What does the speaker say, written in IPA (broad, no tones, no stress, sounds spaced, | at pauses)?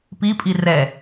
p i pʼ i r ɛ